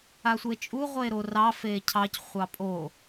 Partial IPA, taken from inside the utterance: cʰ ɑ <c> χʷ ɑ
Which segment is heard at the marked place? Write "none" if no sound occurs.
c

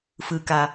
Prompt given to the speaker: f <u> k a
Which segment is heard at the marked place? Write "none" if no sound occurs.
ɯ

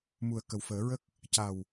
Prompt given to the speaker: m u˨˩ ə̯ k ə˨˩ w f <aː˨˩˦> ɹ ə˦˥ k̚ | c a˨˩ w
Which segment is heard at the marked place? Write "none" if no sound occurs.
əː˨˩˦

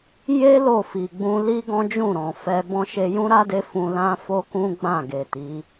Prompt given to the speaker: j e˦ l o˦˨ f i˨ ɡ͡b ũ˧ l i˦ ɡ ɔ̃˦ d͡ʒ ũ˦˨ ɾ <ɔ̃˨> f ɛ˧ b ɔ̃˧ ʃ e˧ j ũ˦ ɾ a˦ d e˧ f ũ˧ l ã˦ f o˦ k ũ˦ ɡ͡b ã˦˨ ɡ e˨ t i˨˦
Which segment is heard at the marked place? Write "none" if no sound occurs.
ɔ̃˨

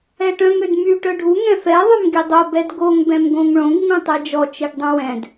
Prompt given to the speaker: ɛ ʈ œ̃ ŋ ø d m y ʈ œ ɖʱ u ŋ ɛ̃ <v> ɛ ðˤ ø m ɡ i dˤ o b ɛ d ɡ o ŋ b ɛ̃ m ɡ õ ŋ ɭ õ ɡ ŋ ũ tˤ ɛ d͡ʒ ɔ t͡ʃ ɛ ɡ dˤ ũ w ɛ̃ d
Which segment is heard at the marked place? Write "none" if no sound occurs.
f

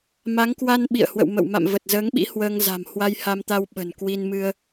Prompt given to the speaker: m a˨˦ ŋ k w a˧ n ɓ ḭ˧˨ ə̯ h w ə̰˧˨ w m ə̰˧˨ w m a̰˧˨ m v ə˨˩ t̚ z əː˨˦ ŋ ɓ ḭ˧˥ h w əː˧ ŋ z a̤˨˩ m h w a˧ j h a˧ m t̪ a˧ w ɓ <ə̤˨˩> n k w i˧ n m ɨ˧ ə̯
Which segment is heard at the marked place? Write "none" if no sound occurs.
ə̤˨˩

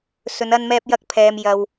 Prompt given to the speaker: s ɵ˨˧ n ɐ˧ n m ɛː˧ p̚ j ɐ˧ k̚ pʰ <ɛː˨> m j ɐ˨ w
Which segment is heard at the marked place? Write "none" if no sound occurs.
ɛː˨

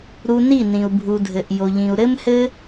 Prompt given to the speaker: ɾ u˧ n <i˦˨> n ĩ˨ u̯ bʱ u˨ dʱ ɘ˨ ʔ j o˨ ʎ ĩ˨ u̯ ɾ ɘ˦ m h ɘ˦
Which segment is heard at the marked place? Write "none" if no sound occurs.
i˦˨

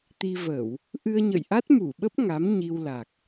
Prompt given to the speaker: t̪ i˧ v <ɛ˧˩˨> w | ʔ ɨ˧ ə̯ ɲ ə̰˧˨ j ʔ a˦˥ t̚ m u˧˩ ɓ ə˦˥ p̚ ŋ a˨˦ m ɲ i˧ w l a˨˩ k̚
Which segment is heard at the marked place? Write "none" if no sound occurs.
ə˧˩˨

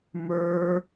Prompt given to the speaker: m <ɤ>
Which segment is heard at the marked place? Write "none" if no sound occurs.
ə˞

